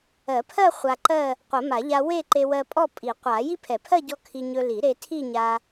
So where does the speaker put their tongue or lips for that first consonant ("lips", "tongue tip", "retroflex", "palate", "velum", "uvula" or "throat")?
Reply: lips